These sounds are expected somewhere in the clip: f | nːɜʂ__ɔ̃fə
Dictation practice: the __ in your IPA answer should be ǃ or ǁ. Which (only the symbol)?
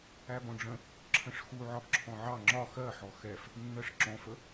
ǁ